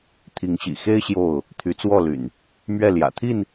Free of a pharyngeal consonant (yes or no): yes